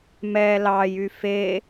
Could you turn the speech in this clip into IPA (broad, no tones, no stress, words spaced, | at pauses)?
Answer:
mɛ lɑjy fe